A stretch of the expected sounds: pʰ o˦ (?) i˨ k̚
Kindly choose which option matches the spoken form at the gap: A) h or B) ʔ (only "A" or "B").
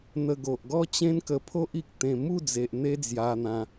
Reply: B